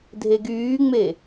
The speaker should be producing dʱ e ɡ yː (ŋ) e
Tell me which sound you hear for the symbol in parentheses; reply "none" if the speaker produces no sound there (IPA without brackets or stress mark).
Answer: ŋ͡m